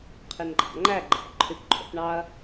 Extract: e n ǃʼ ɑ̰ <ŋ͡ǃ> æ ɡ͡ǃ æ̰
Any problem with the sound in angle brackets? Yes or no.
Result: no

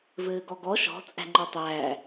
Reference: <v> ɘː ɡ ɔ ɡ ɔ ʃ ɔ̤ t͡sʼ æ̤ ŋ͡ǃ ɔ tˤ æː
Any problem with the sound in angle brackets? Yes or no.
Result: no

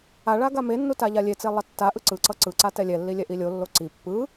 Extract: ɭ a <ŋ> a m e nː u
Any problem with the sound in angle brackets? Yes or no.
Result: yes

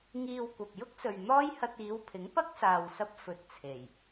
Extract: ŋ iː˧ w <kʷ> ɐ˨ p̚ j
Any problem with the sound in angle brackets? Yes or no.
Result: no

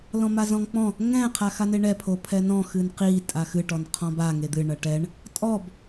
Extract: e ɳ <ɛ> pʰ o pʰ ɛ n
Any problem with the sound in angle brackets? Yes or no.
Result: no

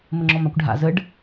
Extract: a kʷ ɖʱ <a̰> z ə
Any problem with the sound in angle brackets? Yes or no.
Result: no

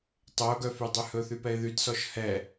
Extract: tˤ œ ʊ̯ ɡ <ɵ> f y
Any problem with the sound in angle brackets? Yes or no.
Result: yes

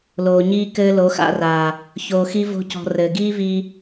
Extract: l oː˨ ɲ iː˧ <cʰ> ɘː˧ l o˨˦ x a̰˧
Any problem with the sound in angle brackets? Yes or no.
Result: yes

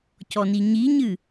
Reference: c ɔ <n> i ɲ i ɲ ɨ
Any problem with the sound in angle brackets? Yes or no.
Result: no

